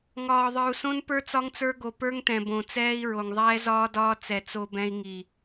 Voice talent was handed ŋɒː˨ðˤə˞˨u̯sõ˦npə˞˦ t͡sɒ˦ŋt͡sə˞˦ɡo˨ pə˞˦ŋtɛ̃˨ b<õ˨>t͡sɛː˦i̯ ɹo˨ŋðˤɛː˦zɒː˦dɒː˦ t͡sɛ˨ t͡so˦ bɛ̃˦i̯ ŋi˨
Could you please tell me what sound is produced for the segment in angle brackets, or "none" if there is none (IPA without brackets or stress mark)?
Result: õ˨